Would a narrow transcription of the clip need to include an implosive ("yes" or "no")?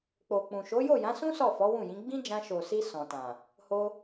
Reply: no